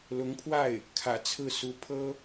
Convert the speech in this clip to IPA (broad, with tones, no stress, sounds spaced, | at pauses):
l ʊ˧˥ ŋ pʰ w a˥˩ ɪ̯ | kʰ ä̰˨˩ t͡sʰ ɹ̩˥˩ s u˧˥ pʰ ɤ˥